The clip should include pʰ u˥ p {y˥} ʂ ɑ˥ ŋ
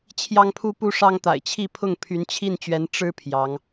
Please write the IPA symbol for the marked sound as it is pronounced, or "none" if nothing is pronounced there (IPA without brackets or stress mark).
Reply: u˥